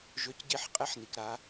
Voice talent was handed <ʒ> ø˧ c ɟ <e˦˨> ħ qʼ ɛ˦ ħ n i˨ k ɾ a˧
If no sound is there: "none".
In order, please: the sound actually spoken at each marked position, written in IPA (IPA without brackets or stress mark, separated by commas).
ʒ, e˦˨